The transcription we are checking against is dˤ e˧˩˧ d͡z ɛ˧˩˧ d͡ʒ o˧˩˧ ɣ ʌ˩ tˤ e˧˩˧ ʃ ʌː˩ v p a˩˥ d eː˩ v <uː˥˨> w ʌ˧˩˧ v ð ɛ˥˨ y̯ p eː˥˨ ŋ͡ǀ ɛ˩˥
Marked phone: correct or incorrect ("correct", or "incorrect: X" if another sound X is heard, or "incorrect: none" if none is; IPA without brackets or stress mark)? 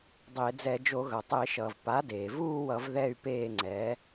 correct